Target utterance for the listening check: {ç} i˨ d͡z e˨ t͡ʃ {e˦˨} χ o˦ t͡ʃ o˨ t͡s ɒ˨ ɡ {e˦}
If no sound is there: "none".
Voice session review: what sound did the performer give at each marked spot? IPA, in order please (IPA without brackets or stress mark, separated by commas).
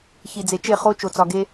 ç, e˦˨, e˦